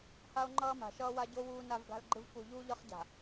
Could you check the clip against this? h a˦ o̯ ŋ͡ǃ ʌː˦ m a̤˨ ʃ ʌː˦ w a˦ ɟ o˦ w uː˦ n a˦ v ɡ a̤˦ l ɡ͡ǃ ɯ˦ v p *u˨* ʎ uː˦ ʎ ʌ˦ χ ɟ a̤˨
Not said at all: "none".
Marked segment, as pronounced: u˨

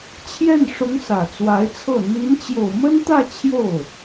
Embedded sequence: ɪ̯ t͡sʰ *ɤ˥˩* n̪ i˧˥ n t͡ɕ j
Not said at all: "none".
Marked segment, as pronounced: ɤ˥˩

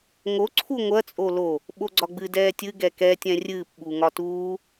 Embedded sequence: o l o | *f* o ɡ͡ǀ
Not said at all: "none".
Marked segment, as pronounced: ɓ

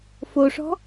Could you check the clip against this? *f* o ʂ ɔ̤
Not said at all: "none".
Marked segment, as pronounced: f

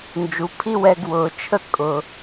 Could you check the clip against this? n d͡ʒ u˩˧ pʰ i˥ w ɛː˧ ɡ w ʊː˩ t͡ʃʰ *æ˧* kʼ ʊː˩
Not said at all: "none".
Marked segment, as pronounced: ə˧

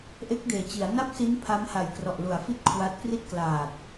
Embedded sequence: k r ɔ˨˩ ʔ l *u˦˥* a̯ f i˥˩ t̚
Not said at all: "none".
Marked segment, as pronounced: u˩˦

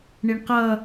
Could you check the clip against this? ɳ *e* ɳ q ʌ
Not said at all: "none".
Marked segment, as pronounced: i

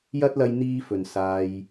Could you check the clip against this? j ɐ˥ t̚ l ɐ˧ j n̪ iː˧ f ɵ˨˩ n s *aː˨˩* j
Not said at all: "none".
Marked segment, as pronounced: aː˨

